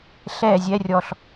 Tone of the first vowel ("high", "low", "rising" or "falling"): falling